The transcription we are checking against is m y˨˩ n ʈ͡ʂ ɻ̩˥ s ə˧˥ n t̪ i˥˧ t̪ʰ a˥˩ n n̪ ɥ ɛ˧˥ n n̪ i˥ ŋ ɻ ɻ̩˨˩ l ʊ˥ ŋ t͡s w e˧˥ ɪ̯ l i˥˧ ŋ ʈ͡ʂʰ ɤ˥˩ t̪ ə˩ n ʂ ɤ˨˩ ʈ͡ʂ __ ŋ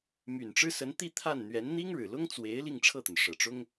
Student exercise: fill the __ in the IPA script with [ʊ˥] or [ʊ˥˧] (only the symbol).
ʊ˥